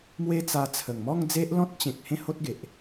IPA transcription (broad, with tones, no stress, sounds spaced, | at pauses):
m w e˦ t͡s a˧ t͡sʰ ə˨˩ ŋ m ɔ˥˧ ŋ d͡z e˦ ʔ l ɔ̃˦ t̚ t͡ɕ ẽ˨ k̚ h ẽ˥˧ h o˦ t̚ ɡ e˨ ʔ